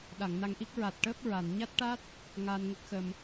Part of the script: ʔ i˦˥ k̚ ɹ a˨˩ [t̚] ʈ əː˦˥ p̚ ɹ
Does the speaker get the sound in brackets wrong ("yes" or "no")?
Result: no